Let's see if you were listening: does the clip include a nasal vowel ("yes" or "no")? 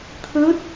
no